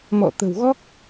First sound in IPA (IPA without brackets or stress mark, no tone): m